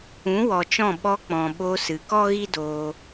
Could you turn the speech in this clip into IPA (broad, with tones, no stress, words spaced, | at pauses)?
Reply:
ũ˨˦wɔ˨t͡ʃɔ̃˦˨ ɓɔ˧k͡pɔ̃˨ ɓo˧sɨ˨ kɔ˦ɣi˦doː˧